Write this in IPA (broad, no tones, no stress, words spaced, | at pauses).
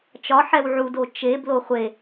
t͡ʃɒ ħɛwʕudo t͡ʃeblo χʷe